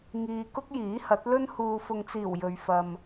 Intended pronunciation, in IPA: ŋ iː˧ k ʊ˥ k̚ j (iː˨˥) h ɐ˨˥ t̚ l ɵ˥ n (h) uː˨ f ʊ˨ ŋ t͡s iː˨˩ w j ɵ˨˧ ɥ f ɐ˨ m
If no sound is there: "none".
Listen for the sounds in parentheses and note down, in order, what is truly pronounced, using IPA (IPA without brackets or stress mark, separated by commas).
iː˨˥, h